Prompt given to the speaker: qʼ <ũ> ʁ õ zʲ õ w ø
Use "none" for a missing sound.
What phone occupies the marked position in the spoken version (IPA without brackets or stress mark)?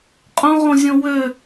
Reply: õ